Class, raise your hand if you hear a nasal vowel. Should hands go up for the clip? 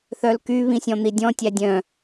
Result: yes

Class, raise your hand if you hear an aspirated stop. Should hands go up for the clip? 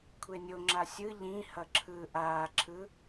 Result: yes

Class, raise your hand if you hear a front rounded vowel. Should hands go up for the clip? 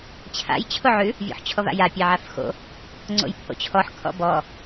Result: no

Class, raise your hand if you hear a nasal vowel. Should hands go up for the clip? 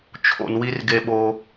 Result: no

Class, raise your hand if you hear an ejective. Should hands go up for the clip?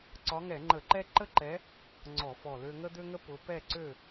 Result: no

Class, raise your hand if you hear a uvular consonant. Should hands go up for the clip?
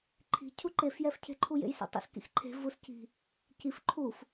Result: no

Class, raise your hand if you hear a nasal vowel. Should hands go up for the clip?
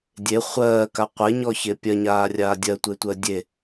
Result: no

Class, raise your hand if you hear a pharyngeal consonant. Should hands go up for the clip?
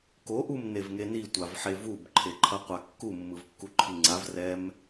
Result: yes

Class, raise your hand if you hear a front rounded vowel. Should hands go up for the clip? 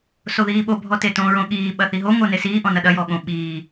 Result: no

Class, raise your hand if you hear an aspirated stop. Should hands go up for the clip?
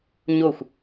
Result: no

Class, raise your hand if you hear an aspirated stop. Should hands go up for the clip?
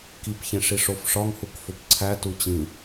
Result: yes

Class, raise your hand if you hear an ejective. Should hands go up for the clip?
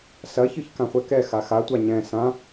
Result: no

